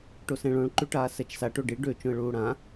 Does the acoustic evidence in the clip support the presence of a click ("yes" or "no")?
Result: yes